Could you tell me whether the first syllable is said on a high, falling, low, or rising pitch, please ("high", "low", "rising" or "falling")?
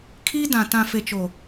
high